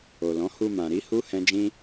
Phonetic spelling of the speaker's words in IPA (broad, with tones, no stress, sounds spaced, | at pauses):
o˨ l ɔ̃˨˦ h u˧ m ã˨ ɾ i˨˦ h u˦ h ɛ̃˦ d͡ʒ ĩ˦